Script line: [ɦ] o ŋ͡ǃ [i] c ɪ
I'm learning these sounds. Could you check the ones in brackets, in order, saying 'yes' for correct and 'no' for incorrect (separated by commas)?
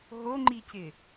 yes, yes